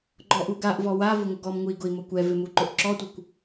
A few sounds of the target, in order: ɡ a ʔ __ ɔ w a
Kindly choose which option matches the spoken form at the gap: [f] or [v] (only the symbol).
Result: v